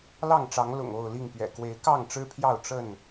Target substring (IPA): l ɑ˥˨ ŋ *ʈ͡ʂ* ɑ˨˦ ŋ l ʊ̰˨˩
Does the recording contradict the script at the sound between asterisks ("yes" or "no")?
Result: no